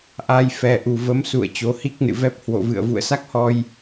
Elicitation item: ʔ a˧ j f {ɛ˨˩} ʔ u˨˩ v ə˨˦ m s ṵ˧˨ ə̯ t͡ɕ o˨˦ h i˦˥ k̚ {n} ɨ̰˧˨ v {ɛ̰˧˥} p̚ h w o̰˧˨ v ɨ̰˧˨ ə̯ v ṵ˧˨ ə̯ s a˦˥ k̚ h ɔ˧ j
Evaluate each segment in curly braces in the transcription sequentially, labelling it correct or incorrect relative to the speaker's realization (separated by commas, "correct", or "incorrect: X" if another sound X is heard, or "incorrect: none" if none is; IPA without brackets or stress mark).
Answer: correct, correct, incorrect: ɛ˦˥